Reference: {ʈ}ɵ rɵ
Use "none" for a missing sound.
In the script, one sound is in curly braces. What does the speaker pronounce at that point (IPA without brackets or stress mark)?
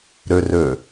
ɾ